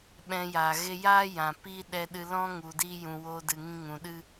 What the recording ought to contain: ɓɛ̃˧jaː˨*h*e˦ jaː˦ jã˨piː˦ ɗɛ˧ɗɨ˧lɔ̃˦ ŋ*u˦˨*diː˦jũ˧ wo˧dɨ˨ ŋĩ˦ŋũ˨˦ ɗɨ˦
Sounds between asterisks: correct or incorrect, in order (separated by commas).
incorrect, incorrect